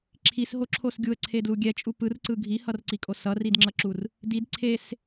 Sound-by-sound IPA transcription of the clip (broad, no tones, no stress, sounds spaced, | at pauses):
ǁʰ i s ɦ o ǁʰ o s ɡʲ u ə̯ ǀʰ e d l u ɡʲ ɛ t͡ʃʼ u p ɯ r ǀ ɯ ɡʱ i h ʌ r ǀ i kʼ o s ʌ r i d ŋ͡ǁ ʌ ǁ u r | d i d ǀʰ e s